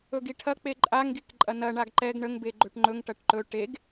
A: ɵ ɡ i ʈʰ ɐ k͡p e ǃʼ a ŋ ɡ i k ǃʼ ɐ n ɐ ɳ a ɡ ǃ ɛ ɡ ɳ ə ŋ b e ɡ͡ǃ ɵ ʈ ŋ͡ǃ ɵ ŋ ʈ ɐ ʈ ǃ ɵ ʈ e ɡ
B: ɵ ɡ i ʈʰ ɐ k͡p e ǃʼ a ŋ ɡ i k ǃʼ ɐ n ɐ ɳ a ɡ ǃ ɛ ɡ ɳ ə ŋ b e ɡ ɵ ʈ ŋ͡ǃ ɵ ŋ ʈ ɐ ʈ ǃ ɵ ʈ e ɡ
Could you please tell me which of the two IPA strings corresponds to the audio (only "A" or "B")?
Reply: A